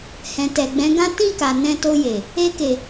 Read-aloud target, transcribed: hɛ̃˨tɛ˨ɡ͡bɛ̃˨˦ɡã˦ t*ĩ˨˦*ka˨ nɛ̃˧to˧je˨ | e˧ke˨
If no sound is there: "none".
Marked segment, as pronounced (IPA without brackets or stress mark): ĩ˦˨